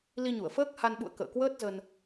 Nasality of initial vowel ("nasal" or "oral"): oral